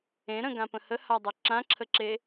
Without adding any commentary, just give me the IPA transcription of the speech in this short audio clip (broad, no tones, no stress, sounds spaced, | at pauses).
ẽ ɾ ə̃ ɡ ã p ə̃ h ə h a dˤ ø ǁ ã ǁʰ ə ǁ e